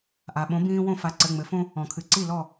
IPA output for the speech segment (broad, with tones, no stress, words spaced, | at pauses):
ʔa˩ɓõ˨˥ bĩː˦wõ˥˩fa˨˥ ǀɘ˩˧˩ŋ͡mɘ˩˧fõ˦ | ɔ̃˩kʰɨ˩˧ǀi˥˩lɔ˥˩